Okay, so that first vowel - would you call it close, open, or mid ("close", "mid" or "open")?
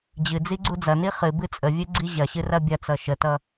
close